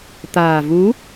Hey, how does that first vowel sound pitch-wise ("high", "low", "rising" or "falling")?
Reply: low